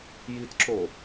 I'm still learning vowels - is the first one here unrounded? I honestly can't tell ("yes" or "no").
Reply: yes